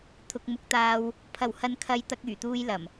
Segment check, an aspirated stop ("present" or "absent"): present